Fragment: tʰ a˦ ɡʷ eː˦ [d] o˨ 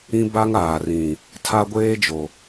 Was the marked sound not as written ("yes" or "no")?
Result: yes